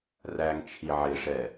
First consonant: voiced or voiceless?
voiced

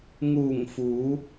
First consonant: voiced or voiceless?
voiced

